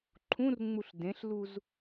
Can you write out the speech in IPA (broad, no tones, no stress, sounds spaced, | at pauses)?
ǃʰ ũ r ŋ͡m u ɬ d ẽ ɬ l u z